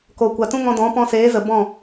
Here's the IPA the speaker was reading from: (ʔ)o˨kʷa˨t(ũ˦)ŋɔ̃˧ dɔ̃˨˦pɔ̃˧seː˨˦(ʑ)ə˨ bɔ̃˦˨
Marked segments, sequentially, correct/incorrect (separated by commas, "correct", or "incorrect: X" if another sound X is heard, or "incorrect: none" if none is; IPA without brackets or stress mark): incorrect: k, correct, incorrect: z